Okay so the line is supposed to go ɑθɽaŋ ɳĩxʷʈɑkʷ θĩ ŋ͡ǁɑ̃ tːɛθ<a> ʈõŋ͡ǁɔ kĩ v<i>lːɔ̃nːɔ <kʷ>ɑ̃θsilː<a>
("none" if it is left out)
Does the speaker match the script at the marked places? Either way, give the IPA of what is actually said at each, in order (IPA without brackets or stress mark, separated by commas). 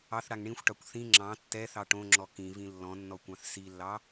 ɑ, ĩ, kʷ, ɑ